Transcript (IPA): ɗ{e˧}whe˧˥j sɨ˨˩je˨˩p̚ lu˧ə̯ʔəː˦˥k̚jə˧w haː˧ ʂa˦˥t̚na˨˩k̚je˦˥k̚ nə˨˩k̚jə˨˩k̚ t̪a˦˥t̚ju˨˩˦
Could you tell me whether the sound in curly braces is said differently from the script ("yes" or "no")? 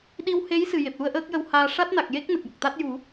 yes